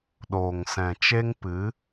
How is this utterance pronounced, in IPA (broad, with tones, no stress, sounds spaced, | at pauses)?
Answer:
ɗ oː˨ ŋ s ɛ̃˨ t͡ʃ e˦ ŋ p ɨ˨˦